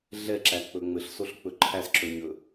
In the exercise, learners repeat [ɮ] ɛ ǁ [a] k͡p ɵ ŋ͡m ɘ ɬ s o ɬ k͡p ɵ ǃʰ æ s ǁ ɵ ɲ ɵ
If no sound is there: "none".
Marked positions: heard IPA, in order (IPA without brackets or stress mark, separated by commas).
ɮ, æ